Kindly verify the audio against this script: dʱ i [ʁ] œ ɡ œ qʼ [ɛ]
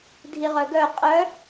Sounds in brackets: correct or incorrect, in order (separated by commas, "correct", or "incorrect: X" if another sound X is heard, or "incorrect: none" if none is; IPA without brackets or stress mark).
correct, incorrect: œ